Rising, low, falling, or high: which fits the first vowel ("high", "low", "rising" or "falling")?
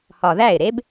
low